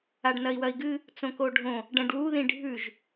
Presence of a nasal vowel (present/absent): present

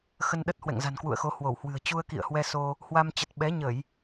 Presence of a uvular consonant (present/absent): absent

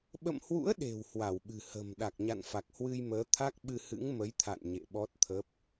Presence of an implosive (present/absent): present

